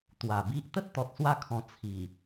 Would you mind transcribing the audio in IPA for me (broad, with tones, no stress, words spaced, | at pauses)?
t̪wa˨˩bi˦ʔ t̪ə˦t̚t̪ɔ˨t̚swa˧kʰɔ̃˨˩ t͡sʰi˨˩